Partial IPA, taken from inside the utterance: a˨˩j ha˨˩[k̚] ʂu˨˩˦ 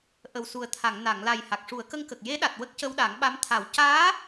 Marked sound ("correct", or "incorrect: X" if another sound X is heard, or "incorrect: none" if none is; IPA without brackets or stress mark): correct